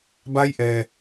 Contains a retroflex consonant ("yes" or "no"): no